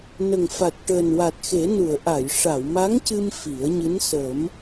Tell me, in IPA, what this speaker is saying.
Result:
n ə˨˩ ŋ f a˨˩ t̚ ʈ əː˨˩ n w a˨˩ t̚ x e˨˩˦ n u˨˩˨ ə̯ ʔ a˨˩˨ j ʂ a˨˩˨ w m a˧˥ ŋ c ɨ˧ m f i˨˩˦ ə̯ ɲ ɨ˧˥ n s ə˨˩˦ m

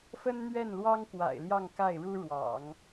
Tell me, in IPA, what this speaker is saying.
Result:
f ə˥ n n̪ ɥ ɛ˥˩ n l w ɑ˥ ŋ k w a̰˨˩ ɪ̯ l j ɑ˥˧ ŋ k a˥˩ ɪ̯ ɻ u˥ ɻ w ɑ̰˨˩˦ ŋ

